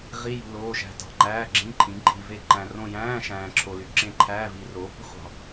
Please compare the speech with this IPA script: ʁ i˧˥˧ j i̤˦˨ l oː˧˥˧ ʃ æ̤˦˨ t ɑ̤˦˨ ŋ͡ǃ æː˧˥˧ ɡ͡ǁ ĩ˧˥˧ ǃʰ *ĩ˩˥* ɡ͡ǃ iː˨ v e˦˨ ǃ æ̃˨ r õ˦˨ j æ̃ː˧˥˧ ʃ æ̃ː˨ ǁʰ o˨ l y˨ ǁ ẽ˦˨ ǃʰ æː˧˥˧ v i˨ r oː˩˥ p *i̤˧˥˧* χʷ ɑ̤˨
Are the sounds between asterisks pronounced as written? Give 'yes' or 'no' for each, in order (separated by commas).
yes, yes